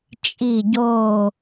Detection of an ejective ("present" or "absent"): present